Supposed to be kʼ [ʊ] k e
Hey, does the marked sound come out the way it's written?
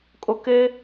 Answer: yes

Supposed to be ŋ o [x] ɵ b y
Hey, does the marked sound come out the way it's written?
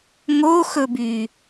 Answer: yes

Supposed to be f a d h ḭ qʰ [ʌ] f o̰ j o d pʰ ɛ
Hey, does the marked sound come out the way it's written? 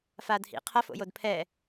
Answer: yes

